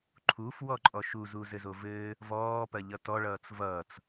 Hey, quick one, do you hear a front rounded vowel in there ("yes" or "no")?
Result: no